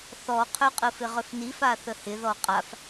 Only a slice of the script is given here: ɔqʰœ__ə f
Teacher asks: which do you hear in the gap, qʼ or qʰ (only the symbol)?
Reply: qʼ